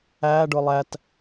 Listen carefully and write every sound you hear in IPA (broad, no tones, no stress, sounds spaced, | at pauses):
æː ɖ ʊː lˠ æ t